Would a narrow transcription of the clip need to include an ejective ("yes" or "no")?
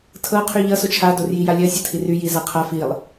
no